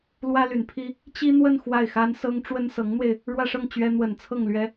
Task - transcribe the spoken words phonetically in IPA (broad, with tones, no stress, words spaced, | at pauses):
lwä˥ly˨˩npʰi˥ | t͡ɕi˥n̪wə˥˧n xwa˥˩ɪ̯xa˥nsɤ˥ŋ ʈ͡ʂwə˥nsɤ˧˥ŋn̪we˧ɪ̯ | ɻwä˥˧ʂɤ˥˩ŋ t͡ɕɥɛ˥ n̪wə˨˩nt͡sʰɤ˥˩ŋ lɥɛ˥